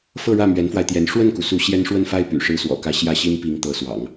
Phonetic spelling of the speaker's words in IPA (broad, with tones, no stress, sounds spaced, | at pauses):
f ɤ˥˧ ɻ ä˥˩ m ɥ ɛ˧˥ n f w a˧ ɪ̯ t̪ j ɛ˧˥ n ʂ w ə˥˩ n k u˩ s u˧˥ ɕ j ɛ˥ n ʂ w ə˥˧ n f a˥˩ ɪ̯ p y̰˨˩ ʂ ɻ̩˥ s w ɔ̰˨˩ k ä˥˧ ɕ j ä˥˩ ɕ i˥ n p i˧˥ ŋ t̪ ɤ˧˥ s w ɑ̰˨˩˦ ŋ